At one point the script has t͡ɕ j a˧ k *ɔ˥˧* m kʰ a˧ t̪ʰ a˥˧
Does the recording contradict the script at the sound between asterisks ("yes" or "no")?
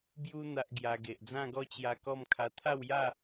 no